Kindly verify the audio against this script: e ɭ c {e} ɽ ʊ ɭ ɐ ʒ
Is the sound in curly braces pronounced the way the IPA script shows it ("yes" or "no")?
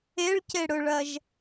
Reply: yes